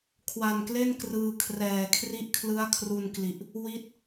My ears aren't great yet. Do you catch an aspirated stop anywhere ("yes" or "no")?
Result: yes